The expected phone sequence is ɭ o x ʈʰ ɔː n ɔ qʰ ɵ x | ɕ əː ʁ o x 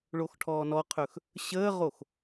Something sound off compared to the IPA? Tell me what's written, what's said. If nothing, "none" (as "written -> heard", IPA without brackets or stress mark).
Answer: none